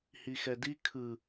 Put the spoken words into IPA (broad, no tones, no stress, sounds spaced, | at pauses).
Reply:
h i x ɛ d i kʰ ɯ